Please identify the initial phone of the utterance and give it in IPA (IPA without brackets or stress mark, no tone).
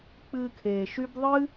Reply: k͡p